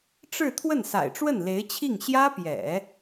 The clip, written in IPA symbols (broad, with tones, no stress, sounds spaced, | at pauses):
ʈ͡ʂ ɻ̩˥˧ t̪ʰ w ə˥˩ n s a̰˨˩ ɪ̯ ʈ͡ʂ w ə˥˩ n l e˧˥ ɪ̯ t͡ɕʰ i˥˩ ŋ ɕ j ä˥ p j ɛ̰˨˩˦